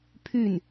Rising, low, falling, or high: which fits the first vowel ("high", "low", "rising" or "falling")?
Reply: falling